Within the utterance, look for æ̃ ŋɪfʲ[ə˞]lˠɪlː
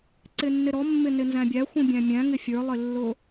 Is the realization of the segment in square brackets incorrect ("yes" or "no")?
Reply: no